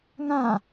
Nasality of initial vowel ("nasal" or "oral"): nasal